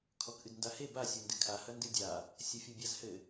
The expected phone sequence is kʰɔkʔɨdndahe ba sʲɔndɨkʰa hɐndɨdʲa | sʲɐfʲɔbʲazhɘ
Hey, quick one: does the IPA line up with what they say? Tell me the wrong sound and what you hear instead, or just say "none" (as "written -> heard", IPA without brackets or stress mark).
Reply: none